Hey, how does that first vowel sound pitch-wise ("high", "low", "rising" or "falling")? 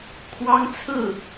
high